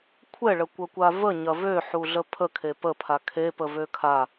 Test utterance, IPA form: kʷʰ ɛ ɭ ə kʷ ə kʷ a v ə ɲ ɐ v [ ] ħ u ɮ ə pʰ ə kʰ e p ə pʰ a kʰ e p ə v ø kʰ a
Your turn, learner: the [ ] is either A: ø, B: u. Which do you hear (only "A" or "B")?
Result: A